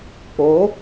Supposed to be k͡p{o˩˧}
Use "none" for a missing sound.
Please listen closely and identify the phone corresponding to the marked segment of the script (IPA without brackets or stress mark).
o˩˧